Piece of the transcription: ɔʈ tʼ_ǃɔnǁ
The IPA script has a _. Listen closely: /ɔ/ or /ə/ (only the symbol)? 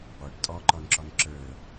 ɔ